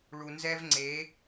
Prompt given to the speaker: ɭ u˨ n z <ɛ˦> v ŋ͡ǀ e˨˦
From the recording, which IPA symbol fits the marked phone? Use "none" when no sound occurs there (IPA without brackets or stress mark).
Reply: ɛ˦